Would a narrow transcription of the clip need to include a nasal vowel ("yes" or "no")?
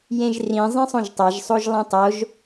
yes